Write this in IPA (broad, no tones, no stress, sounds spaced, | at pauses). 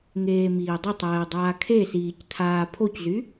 ŋ eː m iː dˤ ʊ tˤ ɛː dˤ aː kʰ e s iː c tʰ aː pʰ o c z y